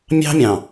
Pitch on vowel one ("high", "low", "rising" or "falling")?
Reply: high